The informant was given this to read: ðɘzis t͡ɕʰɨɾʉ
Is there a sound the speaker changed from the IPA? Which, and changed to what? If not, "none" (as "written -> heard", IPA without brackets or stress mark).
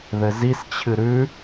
none